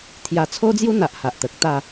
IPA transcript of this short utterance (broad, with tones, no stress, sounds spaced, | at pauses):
t̪ʰ j a˧ t͡sʰ o˦ d͡z j u˦ n̪ a˨ ʔ h a˨ ʔ t̪ ə˨ k̚ t̪ a˥˧